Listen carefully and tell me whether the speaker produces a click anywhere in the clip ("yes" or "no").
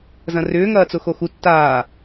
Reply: no